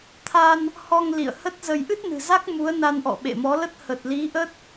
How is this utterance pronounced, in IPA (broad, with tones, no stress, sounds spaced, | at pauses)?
t̪ʰ a˧ n | h ɔ˧ ŋ l ḭ˧˨ ə̯ h ə˦˥ t̚ z ə˧ j ʔ ɨ˦˥ t̚ n ɨ̤˨˩ z a˦˥ k̚ m u˨˦ ə̯ n a˧ n ʔ ɔ̰˧˨ ɓ ḛ˧˨ m ɔ˨˦ l ə˦˥ t̚ h ə˨˩ t̚ l i˨˦ ʔ ə˦˥ t̚